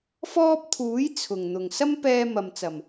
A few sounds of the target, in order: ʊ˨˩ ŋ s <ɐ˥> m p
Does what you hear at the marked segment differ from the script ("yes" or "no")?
no